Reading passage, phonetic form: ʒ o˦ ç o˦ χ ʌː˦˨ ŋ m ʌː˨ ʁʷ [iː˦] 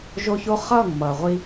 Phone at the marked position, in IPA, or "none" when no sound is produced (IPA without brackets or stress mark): i˦